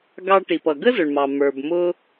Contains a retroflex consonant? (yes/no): yes